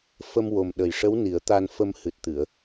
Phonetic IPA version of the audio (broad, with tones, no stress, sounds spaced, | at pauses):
f ə˧ m w o˨˩ m ɗ ə˨˩ j ʂ ə˧˥ w n i˨˩˦ ə̯ t̪ a˨˩ n f ə˨˩ m h ɨ˨˩ t̚ t̪ ɨ˨˩˨ ə̯